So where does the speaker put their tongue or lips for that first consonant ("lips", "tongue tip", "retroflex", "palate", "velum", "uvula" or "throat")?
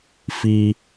lips